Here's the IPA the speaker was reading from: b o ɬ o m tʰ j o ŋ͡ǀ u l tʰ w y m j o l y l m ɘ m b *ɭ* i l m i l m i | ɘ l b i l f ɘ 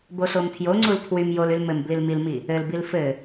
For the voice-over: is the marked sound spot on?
no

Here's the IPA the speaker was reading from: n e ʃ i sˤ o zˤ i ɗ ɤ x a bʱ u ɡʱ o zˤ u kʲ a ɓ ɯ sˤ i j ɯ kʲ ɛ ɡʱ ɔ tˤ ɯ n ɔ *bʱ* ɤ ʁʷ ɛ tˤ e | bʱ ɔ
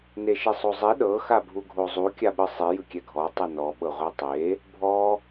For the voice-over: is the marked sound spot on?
no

